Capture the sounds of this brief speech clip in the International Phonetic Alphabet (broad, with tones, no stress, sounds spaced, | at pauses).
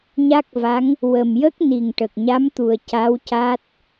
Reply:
ɲ a˦˥ k̚ v a˧˥ ŋ | w ə˨˩ m j ə˦˥ k̚ n i˨˩ ŋ ʈ ə˨˩ k̚ ɲ a˧˥ m t̪ u˨˩ ə̯ c a˧˥ w c a˦˥ t̚